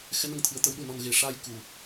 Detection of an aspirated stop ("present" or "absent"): present